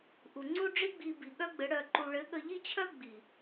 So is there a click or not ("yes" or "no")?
yes